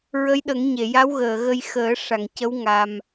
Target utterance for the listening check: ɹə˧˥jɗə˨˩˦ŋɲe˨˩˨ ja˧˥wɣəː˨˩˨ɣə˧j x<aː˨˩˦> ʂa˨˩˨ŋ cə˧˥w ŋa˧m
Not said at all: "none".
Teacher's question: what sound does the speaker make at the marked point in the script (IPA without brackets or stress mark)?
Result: əː˨˩˦